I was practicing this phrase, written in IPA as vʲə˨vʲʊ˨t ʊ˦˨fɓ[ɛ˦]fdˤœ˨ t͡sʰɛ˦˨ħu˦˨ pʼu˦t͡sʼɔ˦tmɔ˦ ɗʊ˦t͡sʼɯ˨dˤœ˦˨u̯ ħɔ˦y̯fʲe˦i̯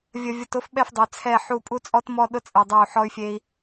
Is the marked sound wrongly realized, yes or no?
yes